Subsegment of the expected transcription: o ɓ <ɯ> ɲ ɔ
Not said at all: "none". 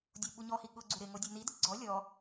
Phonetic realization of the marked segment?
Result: u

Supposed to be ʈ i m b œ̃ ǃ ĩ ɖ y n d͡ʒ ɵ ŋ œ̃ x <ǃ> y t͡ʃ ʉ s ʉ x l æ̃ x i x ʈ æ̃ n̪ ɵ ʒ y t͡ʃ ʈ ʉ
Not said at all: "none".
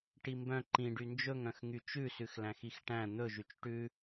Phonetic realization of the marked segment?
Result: ŋ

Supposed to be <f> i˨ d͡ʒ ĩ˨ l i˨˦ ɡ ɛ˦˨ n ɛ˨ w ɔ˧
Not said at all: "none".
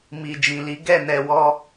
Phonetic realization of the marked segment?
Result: m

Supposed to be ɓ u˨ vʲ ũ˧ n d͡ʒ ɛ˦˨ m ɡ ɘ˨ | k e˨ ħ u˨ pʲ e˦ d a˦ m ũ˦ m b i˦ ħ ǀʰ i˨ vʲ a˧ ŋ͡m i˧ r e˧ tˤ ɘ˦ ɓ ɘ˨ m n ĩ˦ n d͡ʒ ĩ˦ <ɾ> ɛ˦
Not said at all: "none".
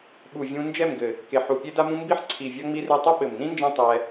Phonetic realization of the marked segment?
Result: tˤ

